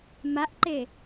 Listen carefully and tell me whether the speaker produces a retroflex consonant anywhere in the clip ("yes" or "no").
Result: no